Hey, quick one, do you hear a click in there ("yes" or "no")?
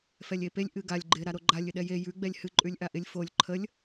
yes